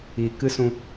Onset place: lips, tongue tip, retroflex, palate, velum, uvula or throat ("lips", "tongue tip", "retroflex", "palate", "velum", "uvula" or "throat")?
velum